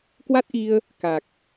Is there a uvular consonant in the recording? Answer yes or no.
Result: no